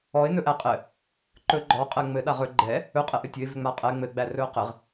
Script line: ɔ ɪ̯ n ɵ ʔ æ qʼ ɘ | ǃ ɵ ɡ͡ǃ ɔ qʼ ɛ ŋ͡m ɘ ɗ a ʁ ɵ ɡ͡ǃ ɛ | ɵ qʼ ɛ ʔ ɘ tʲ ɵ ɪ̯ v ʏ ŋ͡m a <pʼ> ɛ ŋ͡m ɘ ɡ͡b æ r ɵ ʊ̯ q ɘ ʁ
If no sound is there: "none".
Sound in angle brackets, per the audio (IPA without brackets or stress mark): qʼ